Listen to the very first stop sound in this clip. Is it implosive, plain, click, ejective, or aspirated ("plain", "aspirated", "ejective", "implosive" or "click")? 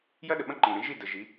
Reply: implosive